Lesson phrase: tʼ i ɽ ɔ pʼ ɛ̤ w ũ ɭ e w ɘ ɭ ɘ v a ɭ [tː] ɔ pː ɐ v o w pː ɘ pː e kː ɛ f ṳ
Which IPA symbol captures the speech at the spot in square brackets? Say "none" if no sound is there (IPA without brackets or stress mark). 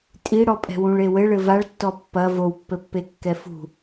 tː